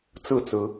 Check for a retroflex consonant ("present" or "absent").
absent